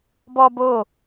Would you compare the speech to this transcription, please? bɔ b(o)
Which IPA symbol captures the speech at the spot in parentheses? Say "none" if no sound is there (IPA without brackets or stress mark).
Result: o